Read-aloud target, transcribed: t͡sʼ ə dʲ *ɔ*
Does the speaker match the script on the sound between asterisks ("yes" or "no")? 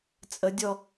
yes